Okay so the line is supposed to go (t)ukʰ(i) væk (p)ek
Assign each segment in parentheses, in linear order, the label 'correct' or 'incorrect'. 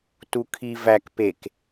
correct, correct, correct

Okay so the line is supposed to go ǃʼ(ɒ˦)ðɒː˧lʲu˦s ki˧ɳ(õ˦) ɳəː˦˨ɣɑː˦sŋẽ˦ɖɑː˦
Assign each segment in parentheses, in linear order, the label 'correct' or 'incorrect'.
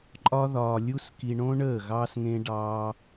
correct, correct

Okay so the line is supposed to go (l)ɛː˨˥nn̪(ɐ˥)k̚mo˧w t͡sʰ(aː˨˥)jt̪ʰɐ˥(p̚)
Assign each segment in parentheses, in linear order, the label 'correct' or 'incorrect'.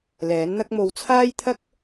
correct, correct, incorrect: aː˥, incorrect: k̚

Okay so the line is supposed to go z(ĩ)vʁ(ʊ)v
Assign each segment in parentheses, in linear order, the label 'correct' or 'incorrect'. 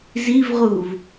incorrect: i, incorrect: u

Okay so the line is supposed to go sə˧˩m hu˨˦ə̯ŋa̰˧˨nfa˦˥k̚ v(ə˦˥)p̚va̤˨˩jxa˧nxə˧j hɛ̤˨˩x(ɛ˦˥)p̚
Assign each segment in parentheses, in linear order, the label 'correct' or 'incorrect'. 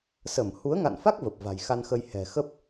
incorrect: ə˨˩, incorrect: ə˦˥

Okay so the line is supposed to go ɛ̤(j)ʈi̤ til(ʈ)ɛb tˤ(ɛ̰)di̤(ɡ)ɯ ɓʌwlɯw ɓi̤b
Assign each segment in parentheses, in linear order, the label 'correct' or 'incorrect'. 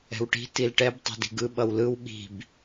incorrect: w, correct, incorrect: ɛ̤, correct

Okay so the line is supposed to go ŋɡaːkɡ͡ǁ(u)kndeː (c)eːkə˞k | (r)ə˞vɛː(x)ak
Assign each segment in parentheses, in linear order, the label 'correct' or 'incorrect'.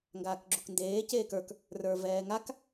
correct, correct, correct, incorrect: ŋ

